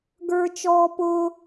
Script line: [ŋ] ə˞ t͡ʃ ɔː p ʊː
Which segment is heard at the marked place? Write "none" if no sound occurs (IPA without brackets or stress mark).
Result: ɡ